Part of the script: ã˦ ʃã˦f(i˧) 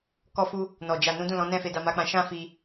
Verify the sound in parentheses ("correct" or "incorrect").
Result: correct